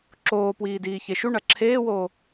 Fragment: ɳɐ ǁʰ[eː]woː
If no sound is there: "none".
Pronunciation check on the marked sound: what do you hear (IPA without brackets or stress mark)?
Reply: eː